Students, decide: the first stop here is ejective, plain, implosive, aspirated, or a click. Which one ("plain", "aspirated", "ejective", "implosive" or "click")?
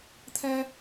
aspirated